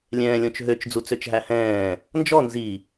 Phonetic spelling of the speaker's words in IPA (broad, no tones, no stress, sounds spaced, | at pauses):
lʲ ɛ̃ː lʲ õ t͡ʃ ɦ ø t͡ʃ d͡z u t͡s ø t͡ʃ ɦ æ h ɛ̃ː | n d͡ʒ ɔ n z i